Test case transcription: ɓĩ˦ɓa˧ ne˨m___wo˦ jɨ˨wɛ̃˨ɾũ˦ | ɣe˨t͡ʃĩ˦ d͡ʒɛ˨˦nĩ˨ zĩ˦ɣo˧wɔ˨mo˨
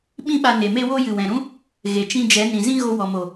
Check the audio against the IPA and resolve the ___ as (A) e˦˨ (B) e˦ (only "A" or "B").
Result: B